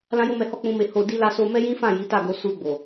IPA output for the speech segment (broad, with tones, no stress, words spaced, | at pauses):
lã˦jo˦mɛ˧hɔ˦ k͡pũ˦me˦ ho˧ di˦la˦ so˧ mɛ˦jĩ˦fã˦˨ ji˨˦ta˦˨ɡo˧ su˧ɡ͡bo˨